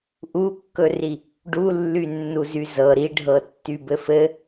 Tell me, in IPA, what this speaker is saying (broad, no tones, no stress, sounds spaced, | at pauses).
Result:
ʔ u kː ɵ r i | ɖ u lː y nː u z y z ɤ ɾ i ɖʱ ɤ tː y b ɘ f ɘ